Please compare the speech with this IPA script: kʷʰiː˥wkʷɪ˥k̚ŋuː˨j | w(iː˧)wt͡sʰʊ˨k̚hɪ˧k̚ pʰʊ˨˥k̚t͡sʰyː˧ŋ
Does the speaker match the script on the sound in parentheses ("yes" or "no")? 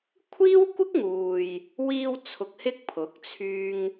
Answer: yes